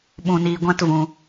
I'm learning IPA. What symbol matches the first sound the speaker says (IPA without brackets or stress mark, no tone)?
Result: ɓ